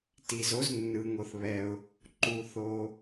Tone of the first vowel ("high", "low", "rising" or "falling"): low